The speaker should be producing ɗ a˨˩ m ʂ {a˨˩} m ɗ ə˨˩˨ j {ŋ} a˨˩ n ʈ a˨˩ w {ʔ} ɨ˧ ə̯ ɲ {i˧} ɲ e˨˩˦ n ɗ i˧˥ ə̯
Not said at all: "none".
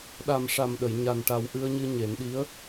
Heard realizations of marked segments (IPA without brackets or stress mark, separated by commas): a˨˩, ɲ, ʔ, ɨ˧